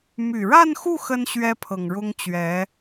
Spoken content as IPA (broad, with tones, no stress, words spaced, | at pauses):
my˨˩ɻa˥˧nxu˥˩ xə˥n ɕɥɛ˥pʰɤ˨˩ŋɻʊ˥ŋ t͡ɕɥɛ˧˥